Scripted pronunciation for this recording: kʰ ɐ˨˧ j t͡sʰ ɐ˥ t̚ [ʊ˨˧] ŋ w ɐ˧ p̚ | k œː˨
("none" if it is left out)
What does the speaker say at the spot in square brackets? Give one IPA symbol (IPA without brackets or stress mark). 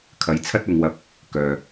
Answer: ʊ˨˧